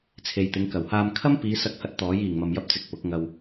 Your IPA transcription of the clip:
t͡sʰ e˨ j t̪ ɪ˨˧ ŋ k ɐ˨˩ w h aː˧ m kʰ ɐ˥ m p iː˨˧ s ɐ˧ k̚ h ɐ˧ t̚ t̪ ɔː˨˥ j iː˨˩ ŋ m ɐ˨ m j ɐ˧ p̚ t͡s ɪ˨ k̚ p ʊ˨˥ k̚ ŋ ɐ˧ w

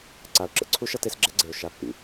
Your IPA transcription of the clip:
ǀ a˨ ʊ̯ ǁ ə̰˨ ǀʰ u˦ ʃ ʌ˦ t e˦ s ɡ͡ǁ ɛ˦ ɡ͡ǀ e˨ ʊ̯ ʃ a˦ pː ḭ˨

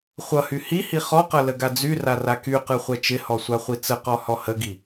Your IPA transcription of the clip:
χʷ ʌ h y h i h i χ ɔ q ʌ l ə ɡ a d͡z y r a r a k y q ɯ χʷ ɛ t͡ʃ ɪ h ɔ sʷ a χʷ i t͡s ə q ɔ h ɔ h ə ɡ i

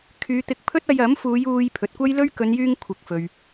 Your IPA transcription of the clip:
kʰ yː˨˧ t̪ ɪ˧ k̚ pʰ ɵ˥ t̚ ɐ˧ j ɐ˨˥ m f uː˨˧ j uː˧ j pʰ ɵ˨ t̚ kʷ ɐ˥ j l ɵ˥ ɥ k ɵ˨˧ n j yː˧ ŋ kʷʰ ɪ˨˥ k̚ f ɵ˨ ɥ

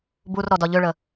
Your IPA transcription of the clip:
b u r ɾ ɔ d ɒ ʎ ø ɭ ə

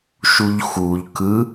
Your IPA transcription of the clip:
ʃ u ʎ x u ʎ k ɯ

